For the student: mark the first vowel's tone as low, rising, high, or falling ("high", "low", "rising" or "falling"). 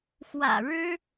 low